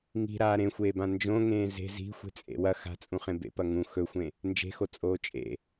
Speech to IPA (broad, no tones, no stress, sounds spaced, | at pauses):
ŋ i̤ ɾ aː ɾ ẽ xʷ eː b ã n d͡ʒ õ ŋ ẽː z e̤ z i̤ xʷ e̤ t͡sʼ ḛ w ɐ x a̤ t͡sʼ ũ χ ẽ b ḛ p ɐ ŋ ũ x ɵ xʷ ẽ | n d͡ʒ e̤ x o t͡sʼ oː t͡ʃʼ ḛ